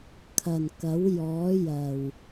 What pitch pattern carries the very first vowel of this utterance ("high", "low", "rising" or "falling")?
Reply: low